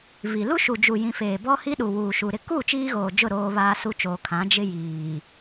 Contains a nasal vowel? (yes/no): yes